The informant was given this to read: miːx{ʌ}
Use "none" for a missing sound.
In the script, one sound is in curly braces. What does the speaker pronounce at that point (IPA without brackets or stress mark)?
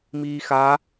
a